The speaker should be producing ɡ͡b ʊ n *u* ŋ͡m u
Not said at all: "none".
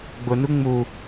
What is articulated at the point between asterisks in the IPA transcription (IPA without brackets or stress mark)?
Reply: u